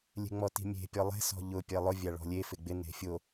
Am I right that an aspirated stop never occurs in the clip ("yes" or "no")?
yes